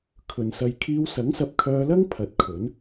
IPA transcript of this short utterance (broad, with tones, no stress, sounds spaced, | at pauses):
kʰ ɵ˨ n s ɐ˧ j kʰ iː˧ w s ɐ˨˥ ŋ s ɐ˨ p̚ kʰ œː˧ l ɐ˥ ŋ pʰ ɐ˨˥ t̚ kʰ ɵ˨˥ n